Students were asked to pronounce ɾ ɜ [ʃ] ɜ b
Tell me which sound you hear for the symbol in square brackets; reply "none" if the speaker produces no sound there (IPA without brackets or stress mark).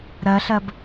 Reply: ɬ